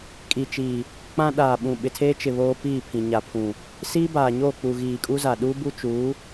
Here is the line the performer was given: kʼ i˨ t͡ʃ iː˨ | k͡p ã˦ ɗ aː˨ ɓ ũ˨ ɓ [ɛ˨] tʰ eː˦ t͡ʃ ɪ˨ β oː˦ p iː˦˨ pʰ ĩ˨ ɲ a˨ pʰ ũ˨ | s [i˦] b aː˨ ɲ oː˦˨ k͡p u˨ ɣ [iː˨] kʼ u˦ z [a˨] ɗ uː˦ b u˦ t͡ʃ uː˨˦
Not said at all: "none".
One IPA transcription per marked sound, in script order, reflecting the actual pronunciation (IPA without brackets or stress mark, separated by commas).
ɪ˨, iː˦, iː˨, a˨